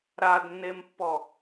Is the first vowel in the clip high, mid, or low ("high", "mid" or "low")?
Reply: low